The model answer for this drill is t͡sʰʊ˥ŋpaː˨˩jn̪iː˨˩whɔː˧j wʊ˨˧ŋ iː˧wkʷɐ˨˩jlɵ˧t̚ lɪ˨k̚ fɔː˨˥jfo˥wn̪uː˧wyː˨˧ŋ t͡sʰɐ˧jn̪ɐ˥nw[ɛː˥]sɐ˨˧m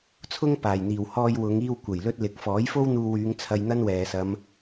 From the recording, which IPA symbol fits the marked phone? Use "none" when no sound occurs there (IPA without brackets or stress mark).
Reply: ɛː˨